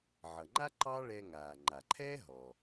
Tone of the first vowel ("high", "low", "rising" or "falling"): low